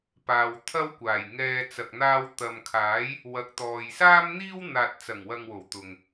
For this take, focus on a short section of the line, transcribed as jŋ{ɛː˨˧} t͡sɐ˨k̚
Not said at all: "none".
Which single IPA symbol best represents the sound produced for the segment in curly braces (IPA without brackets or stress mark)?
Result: ɛː˧